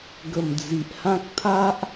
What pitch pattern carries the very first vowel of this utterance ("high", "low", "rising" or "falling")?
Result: low